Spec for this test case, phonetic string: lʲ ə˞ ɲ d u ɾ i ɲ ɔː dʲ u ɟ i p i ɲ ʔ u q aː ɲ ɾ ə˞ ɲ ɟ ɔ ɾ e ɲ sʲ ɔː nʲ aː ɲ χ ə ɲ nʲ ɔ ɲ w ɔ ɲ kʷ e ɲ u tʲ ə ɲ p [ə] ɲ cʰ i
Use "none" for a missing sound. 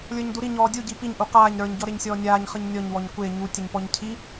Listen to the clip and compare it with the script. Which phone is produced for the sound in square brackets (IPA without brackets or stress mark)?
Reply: ɔ